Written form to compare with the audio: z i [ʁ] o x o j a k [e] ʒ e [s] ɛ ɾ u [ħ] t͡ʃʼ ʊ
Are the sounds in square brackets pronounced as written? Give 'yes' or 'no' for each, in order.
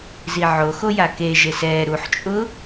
no, yes, yes, yes

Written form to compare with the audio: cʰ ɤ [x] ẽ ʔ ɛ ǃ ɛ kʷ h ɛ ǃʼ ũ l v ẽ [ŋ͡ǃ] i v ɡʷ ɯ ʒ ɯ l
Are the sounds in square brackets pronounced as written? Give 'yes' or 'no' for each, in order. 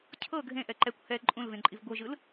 no, no

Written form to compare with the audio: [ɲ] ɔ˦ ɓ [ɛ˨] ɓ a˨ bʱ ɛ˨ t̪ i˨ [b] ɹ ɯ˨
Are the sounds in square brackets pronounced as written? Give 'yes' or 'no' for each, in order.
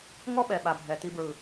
no, yes, yes

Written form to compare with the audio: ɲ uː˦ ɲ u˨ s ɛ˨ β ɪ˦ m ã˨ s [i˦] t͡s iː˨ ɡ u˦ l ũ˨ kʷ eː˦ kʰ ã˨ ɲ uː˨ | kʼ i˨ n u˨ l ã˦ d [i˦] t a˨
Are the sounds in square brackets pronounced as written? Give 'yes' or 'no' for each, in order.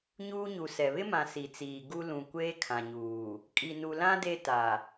no, no

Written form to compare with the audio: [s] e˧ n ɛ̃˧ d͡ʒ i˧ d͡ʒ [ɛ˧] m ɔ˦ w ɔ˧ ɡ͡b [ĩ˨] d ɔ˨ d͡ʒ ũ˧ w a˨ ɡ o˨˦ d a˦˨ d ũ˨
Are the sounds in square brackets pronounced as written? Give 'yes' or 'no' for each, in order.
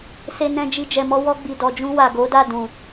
yes, yes, no

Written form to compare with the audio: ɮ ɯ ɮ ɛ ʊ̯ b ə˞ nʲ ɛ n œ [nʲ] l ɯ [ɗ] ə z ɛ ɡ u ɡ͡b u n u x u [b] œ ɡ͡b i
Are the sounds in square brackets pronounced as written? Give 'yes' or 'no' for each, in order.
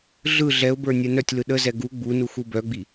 no, yes, yes

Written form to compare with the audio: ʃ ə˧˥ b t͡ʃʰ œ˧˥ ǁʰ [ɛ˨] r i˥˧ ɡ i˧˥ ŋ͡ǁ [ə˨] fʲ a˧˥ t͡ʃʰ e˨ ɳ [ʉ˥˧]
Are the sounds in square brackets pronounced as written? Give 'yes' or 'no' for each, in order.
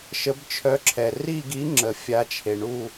yes, yes, no

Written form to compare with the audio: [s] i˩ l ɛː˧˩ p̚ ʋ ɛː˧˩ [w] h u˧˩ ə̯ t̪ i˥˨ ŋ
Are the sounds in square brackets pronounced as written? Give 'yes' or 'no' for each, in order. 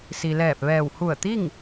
yes, yes

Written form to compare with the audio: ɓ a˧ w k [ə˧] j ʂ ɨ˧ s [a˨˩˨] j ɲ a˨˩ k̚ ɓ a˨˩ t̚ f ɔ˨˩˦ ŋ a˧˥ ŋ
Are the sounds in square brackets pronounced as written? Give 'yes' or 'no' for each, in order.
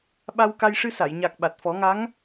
no, yes

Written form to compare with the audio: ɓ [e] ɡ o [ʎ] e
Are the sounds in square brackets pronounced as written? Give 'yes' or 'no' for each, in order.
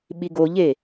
no, yes

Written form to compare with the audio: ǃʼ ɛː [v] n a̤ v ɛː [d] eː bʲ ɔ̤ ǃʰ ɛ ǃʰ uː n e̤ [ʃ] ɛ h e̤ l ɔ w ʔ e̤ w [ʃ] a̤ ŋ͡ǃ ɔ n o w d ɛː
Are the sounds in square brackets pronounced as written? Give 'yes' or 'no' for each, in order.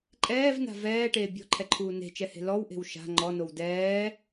yes, no, no, yes

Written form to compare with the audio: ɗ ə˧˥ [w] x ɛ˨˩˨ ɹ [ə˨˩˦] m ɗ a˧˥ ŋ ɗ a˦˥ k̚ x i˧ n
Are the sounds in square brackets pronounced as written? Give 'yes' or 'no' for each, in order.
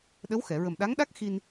yes, no

